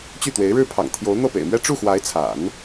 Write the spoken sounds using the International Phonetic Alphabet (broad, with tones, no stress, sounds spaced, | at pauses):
t͡ɕ y˥˩ t̪ w e˧˥ ɪ̯ ɻ ɻ̩˥˩ pʰ ɑ̰˨˩ ŋ t̪ʰ j o˧˥ ʊ̯ n̪ ɤ˥˩ p ḛ˨˩ ɪ̯ m ɥ ɛ˥ ʈ͡ʂ u˥˩ x w a˧˥ ɪ̯ t͡sʰ a̰˨˩˦ n